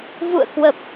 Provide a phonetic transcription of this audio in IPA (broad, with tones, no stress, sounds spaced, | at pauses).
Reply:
v ṵ˧˨ ə̯ k w ə˨˩ p̚